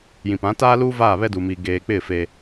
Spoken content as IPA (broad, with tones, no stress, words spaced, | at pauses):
jĩ˨pã˨˦taː˦luː˦ vaː˦˨βɛ˦duː˨miː˨ ɡeː˨k͡pɪ˦˨ fe˦